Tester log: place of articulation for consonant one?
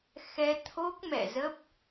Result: velar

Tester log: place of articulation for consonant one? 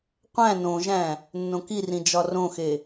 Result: uvular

